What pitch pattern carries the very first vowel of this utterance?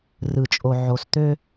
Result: low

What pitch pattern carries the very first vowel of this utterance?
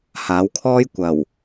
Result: rising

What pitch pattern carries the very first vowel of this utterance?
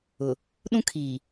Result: low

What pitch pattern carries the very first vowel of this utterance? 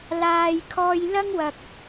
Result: low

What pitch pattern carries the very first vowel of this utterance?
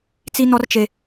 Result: high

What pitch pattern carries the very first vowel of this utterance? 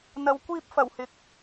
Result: low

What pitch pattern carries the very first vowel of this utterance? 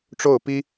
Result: falling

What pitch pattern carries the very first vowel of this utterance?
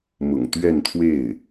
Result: low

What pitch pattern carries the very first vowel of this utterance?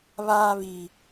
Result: low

